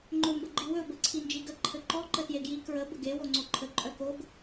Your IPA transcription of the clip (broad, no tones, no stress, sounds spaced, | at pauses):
ŋ͡ǃ ɵ m b ə ɡ͡ǃ i w ɵ b ɘ ǀʰ i n d͡ʒ i ɡ ə ǃʰ ɘ ǃ ɔ ǃ ə t j e ɡ j i k ɹ ə b ə ɡ e w o ŋ͡ǀ o ǃʰ ə ǃʼ œ k o ɡ